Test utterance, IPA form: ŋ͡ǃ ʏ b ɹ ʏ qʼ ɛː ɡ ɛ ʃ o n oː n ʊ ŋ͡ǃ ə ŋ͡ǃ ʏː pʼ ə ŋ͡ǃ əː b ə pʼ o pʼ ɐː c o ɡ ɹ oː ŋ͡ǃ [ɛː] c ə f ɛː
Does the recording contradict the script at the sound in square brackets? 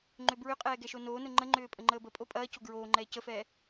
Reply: no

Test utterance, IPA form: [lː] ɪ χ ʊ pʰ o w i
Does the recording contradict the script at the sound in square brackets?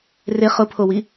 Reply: yes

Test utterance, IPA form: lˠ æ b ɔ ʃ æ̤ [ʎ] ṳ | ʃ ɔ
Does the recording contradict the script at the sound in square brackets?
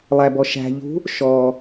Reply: no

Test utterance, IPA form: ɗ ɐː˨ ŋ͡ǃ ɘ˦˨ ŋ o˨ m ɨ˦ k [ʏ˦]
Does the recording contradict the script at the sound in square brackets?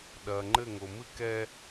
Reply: yes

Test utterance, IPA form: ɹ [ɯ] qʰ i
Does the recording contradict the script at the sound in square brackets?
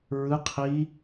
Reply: no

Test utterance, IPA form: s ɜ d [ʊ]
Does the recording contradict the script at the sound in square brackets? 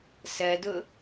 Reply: no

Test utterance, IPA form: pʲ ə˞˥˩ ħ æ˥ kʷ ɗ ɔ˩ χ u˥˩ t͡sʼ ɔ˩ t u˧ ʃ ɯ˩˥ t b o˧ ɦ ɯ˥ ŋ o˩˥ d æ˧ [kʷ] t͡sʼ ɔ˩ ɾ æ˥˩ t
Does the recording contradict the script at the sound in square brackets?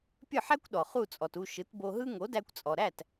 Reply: no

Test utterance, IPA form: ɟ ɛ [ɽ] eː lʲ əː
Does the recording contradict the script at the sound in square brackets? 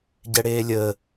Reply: no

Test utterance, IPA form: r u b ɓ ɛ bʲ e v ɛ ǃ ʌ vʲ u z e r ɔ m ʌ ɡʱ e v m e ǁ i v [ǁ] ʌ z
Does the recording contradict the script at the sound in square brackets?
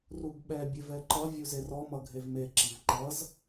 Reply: yes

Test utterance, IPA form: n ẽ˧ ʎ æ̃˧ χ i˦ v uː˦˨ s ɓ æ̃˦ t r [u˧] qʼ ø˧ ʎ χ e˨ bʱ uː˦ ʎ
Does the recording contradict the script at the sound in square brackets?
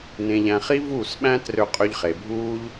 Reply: yes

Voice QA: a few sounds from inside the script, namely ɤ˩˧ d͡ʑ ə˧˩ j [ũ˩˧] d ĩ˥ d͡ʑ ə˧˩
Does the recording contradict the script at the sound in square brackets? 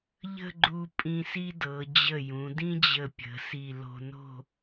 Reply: no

